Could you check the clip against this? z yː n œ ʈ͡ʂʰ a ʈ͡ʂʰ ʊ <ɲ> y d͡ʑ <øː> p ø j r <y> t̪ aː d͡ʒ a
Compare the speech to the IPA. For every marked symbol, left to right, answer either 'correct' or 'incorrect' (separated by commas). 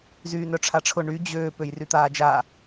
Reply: incorrect, correct, correct